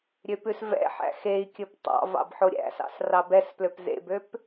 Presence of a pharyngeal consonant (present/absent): present